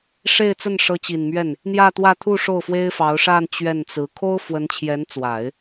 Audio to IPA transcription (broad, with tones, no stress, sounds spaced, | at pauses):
ʂ e˥˧ ɪ̯ t͡s ə˥˩ n ʂ ɤ˧˥ t͡ɕ i˨˩ n m ɥ ɛ˥˩ n | n̪ j ä˥˧ t̪ w ä˥˧ t̪ʰ u˥˧ ʂ o˥˩ ʊ̯ f w e˥ ɪ̯ f ɑ˧˥ ʊ̯ ʂ a˥˧ n t͡ɕ ɥ ɛ˥˩ n t͡s ɹ̩˧˥ kʰ o˥ ʊ̯ f w ə˧˥ n t͡ɕʰ j ɛ˧˥ n t͡s w a˨˩˦ ɪ̯